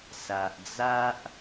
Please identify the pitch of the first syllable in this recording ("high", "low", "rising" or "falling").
low